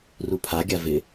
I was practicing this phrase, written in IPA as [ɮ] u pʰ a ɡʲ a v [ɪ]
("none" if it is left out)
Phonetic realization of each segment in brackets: r, ɪ

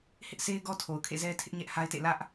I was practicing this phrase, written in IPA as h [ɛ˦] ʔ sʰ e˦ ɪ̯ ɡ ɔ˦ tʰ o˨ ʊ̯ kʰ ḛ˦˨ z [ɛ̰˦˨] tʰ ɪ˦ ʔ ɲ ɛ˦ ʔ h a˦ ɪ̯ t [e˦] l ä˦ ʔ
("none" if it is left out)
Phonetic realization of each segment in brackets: ɪ˦, ɛ˦, ḛ˦˨

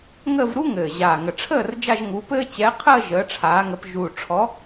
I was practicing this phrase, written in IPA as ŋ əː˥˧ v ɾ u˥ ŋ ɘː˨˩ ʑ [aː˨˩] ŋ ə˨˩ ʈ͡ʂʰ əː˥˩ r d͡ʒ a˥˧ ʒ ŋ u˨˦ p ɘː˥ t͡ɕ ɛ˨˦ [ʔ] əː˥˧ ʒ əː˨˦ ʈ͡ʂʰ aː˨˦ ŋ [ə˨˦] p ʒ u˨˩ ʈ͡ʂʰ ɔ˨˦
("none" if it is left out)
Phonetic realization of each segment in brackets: aː˨˩, qʰ, ə˨˦

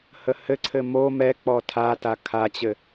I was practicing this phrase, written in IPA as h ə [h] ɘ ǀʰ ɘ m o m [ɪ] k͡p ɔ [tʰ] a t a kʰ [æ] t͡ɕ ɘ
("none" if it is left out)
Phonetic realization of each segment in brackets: h, ɛ, tʰ, a

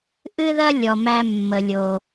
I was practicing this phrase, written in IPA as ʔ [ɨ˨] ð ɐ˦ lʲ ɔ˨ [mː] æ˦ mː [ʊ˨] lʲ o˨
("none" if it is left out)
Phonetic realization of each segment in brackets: ɨ˦, m, ə˨

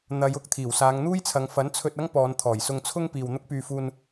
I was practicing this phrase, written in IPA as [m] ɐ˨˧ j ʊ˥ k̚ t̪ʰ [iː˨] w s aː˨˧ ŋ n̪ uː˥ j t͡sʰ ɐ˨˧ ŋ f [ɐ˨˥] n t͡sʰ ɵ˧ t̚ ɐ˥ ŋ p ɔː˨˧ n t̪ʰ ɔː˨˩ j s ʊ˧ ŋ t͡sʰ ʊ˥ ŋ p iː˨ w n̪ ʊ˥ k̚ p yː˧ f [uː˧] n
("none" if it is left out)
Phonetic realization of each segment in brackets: n̪, iː˨˩, ɐ˨˥, uː˧

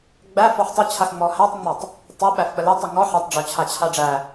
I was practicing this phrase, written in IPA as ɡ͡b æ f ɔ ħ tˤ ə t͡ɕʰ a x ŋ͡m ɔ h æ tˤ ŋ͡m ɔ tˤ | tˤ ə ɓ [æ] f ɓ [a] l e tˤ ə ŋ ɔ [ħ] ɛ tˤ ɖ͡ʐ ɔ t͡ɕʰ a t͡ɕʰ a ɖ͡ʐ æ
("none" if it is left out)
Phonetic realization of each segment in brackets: æ, ə, ħ

